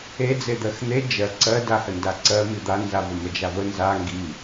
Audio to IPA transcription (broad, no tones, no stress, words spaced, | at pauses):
ed͡zed̪ɜx n̪e d͡ʒɜ ǀɜdahə ndaǀɜmi d̪anzavə məd͡ʒavə nza ŋɡi